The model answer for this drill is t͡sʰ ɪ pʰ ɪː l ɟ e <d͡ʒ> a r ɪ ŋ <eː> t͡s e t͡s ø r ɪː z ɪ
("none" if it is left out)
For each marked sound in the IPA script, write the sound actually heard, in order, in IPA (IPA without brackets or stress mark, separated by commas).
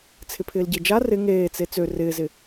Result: d͡ʒ, eː